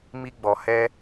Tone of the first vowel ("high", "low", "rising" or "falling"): high